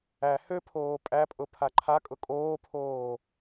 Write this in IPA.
æ høpʰoː pʼæpʼʊ pʰaǃʰakʼʊ kʼoːpʰoː

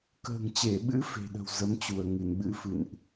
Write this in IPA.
kə̤ː˨˩ŋt͡ɕe˧˩ɓɨ̰˧˥ fe̤˨˩ɗə̤˨˩w zə˨˦mt͡ɕu˧˩ə̯ ŋɨ˧˩nɓɨ̰˧˥ fɨ̰˧˨nʔ

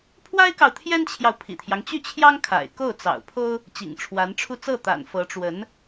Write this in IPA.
pʰwa˥ɪ̯kɑ˨ʊ̯t̪ʰjɛ˥nt͡ɕʰjɑ˨ʊ̯ pʰḭ˨˩t̪ʰjɑ˦ŋt͡ɕy˥˩t͡ɕʰjɑ˥ŋ kʰa̰˨˩ɪ̯ko˥˩ʊ̯ t͡sɑ̰˨˩ʊ̯ pʰo˥ʊ̯ | t͡ɕḭ˨˩ŋʈ͡ʂʰwa˧˥nʈ͡ʂʰu˥˧ t͡sɤ˥˩t̪a̰˨˩n fɤ˧˥ʈ͡ʂwə˧˥n

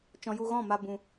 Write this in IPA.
t͡ʃɔ̃˧ju˧ɣɔ̃˦˨ma˧ bũ˧

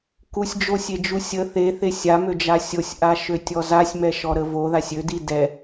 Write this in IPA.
kusʲd͡ʒosʲed͡ʒu sʲə θeθe sʲamød͡ʒa sʲosʲʔaʃøtʲɔ zasʲmɛʃɔɾə voðasʲ ødi dɛ

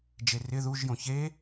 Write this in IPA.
d͡ʒerɪ ðuʒjõ çe

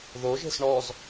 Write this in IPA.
ðoʒe̤s ɳɔz

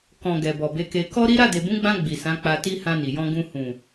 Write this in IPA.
kɔ̃˨ ɡɛ˨bɔ˨be˨˦ke˧ kɔ˦ ɾi˦ ɾa˦˨de˨bũ˨˦ɡ͡bã˧ ɡ͡bi˨sã˨˦k͡pa˧ti˦ hã˧ni˨jɔ̃˧ ɡũ˧ hũ˨

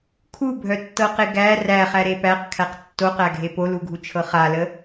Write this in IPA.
kʰubʱœtːɤqe ɡæ ræχæɾe pæqkʰæq tːoqæɡʱe poluɡʱut͡ʃʰɤ χalə

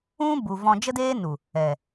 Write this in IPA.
ũ˦ bu˧ vɔ̃˧d͡ʒə˦deː˦ nu˨ | ɛ˨

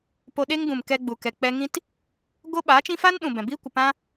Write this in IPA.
po˧ɗe˦ŋɡũ˨m kɛ˧ɡ͡bu˨kɛ˨ k͡pɛ˧ ŋĩ˦t | ɡo˦ɓaː˨˦t͡ʃĩ˦ fa˦nɗũ˨ bɛ̃˨ biː˦kʷə˨pã˦

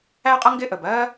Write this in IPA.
æ˥qʼʌ˥ ŋɡɪ˥ʔə˩b ɜ˥

